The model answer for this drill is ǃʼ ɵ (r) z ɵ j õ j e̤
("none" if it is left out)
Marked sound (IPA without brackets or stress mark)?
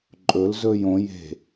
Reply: l